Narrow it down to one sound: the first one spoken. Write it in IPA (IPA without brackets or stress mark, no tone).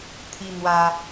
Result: t̪ʰ